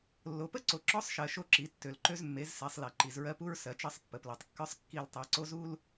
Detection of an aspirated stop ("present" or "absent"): absent